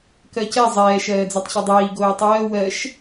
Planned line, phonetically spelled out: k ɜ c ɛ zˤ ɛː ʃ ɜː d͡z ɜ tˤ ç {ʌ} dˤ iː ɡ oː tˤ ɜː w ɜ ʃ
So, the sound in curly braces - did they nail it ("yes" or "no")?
yes